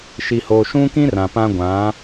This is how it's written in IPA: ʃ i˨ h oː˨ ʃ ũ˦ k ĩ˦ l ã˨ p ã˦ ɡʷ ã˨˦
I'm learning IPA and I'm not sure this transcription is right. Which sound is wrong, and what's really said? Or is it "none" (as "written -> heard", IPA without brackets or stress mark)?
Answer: l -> r